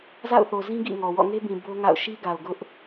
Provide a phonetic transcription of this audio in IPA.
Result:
z a̰˦˨ ʊ̯ θ o˨ z ĩ˦ ɡ ḭ˦˨ ŋ ɔ˨ w ɔ̰˦˨ ŋ e˦ b ĩ˨ b o˦ ŋ a̰˦˨ ʊ̯ ʃ i˦ ɡ a˨ ʊ̯ ɡ ʊ˦ ʔ

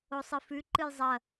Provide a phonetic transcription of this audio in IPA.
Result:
o sˤ ɨ f ʉ ǃ ɨ j zˤ ɐ

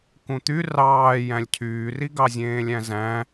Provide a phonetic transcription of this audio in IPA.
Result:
k ũ t̪ y r ɑː j æ̃ lʲ cʰ yː r i ɡ ɑ zʲ ẽː lʲ æ̃ z æ̃

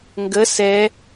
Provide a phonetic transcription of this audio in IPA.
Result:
ŋ ɡ ə s ɛ

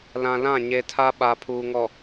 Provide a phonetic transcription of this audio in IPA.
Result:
l ã˨ l ã˦˨ ɲ e˨ tʰ a˦ ɓ a˨ pʰ uː˨ ŋ ɔ˨

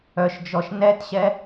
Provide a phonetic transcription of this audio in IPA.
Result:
œ ʃ d͡ʒ ɔ ʃ n ɛ t ɕ ɛ

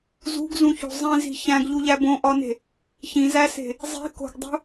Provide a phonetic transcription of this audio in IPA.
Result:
z ṳ ɡ z ũ ç o̤ zˤ ĩ z i̤ ç æ̃ ɡ ʎ u ʎ æ b õ ʔ ɒ n e̤ | ç ĩ z æ s e̤ | zˤ i̤ k o̤ ɡ dˤ ṳ

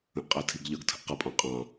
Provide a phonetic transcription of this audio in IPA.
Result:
ə̃ ʔ qʼ æ tʰ i ɡ ʎ ʌ ɡ tʰ ə̤ ʔ q ʌ pʼ ɑ̃ qʼ ɑ̃

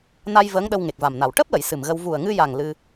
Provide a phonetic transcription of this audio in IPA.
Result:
n a˧ j v əː˧˥ ŋ ɗ ə˧ w ŋ e˨˩ k̚ v a˨˩ m n a˨˩ w ʈ əː˦˥ p̚ l ə˨˩˨ j s ɨ˨˩ m ɣ ə˧ w v u˨˩ ə̯ ŋ ɨ˧ j a˨˩ ŋ l ɨ˧

